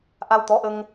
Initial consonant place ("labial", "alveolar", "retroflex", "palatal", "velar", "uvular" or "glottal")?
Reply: glottal